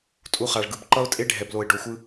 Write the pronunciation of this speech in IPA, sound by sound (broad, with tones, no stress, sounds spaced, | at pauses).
tʼ u˧ χ a˨ ɭ ɡ ɯ˨ b ǃ ʌ˦ ʊ̯ tʼ e˦ ɖʱ ɛ˨ b l o˨ ɪ̯ ɖ o˨ xʷ ɯ˧